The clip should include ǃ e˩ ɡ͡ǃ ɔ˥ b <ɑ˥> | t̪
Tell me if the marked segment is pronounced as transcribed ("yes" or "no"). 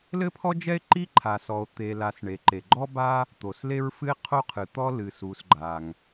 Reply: no